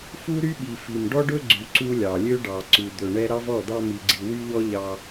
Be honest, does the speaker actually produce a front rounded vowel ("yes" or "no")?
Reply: yes